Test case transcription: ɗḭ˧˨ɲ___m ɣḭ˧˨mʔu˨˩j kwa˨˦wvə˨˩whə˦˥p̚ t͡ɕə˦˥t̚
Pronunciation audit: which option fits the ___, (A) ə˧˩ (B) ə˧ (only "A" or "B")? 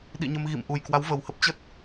B